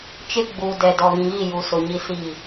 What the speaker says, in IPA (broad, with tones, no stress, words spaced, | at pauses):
t͡ʃɪ˦ɡ͡bu˨ dɛ˨dɔ˨ɣĩ˨ɣi˦˨ ju˨sʊ˨ ɲi˦siː˦˨